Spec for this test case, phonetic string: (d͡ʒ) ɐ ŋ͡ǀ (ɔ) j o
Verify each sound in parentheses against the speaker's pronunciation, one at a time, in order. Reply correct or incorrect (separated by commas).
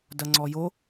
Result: incorrect, correct